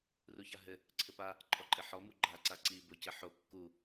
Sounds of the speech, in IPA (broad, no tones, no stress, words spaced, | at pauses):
ruçaɦɘ | ǀʰɘpa | ǃʼɔǃʼɘħɔ muɡ͡ǃa ǀaǀi bocɘħo kːu